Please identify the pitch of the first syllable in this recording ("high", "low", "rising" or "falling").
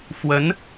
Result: rising